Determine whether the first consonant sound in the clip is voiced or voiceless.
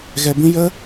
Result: voiced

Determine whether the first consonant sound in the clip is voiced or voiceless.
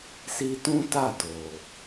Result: voiceless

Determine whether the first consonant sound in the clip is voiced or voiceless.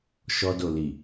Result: voiceless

